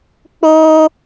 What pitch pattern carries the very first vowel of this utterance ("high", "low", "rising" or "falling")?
high